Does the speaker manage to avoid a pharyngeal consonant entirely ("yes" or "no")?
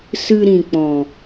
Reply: yes